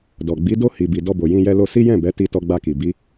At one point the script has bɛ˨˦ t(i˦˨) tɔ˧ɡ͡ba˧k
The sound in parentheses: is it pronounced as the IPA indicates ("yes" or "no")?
no